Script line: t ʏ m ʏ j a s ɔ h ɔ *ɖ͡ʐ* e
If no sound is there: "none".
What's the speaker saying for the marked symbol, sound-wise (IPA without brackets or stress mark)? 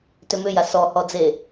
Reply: d͡z